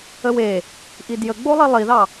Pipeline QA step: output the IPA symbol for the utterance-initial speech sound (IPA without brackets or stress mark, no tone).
ə